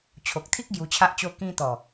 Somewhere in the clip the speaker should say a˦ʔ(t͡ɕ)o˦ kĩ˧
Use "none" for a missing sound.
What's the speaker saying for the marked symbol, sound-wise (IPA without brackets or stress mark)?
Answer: t͡ɕ